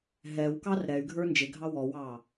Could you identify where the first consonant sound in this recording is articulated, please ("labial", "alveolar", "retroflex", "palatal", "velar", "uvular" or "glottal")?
glottal